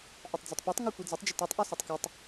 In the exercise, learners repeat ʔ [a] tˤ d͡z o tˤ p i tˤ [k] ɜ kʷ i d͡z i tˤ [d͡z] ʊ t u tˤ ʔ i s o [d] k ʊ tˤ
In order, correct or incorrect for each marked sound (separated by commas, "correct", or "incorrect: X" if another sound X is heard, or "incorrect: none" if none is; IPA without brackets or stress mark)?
correct, incorrect: ŋ, incorrect: d͡ʒ, incorrect: tˤ